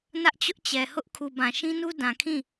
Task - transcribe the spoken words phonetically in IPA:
n ä˦ ʔ t͡ɕ ʊ˦ ʔ t͡ɕ ɛ˨ h ʊ˦ ʔ kʰ u˨ b ã˨ ʃ ĩ˦ n u˦ d ã˨ kʰ ĩ˦˨

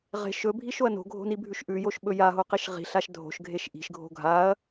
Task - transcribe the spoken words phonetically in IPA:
ʁ e̤ ʃ ɵ bʱ i ʃ o ɐ̯ n o̤ ɡʱ o̤ n i bʱ ʉ ʃ ʔ ʉ j o ʃ ɓ ɵ j a ɦ o q i ʃ ʁ i̤ ɬ a ʃ dʱ o̤ ʃ ɡʱ e ʃ ʔ i̤ ʃ ɡʱ o̤ ɡʱ a ɐ̯

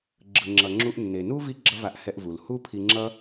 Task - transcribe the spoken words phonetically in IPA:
ɡ͡ǁ ɯ˩ ŋ͡ǁ ʌ˩ ŋ͡ǁ u˧ ʔ nː e˩ n u˥ v i˥ ɡ͡ǁ ʌ˥ v a˧ ʔ h ɛ˧ ʔ v u˩ l h u˥ pʰ i˧ ŋ͡ǁ ʌ˥

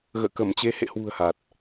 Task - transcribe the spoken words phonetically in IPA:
ɣ ə̰ː˧˨ k ə˧˩ m t͡ɕ e˨˦ h ḛ˧˨ h w ṳ˨˩ ə̯ h a˨˩ t̚

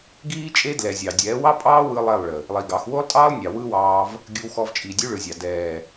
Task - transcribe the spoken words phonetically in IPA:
ɡ iː˦ t͡ʃʼ e˦ d l ɛ˨ zʲ ɑ˨ dʲ ɛː˨˦ w ɑ˦ pʼ ɑː˦ w ɯ˦ lˠ e˦˨ lˠ ɭ ə˨ | lˠ i˨ ɡ ɑ˨˦ x w o˦ lˠ tʼ ɑː˦ lˠ nʲ ɑ˨ w ɯ˦ w ɑː˧ v | ɡʲ ɯ˧ w x ɔ˧ v t͡ʃʼ iː˨ dʲ ʉ˦ ɭ ɯ˨ zʲ ɑ˨ d ɛː˨

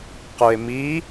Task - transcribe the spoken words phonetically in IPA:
q u e̯ m i

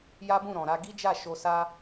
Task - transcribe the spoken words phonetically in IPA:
j a˦ b ũ˦˨ ɾ ɔ̃˨ ɾ a˧ ɡ i˦ d͡ʒ a˦˨ ʃ o˧ s a˧

